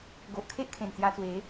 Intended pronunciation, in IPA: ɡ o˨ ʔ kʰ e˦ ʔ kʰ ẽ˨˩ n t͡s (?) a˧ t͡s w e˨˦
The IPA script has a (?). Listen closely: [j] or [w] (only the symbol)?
j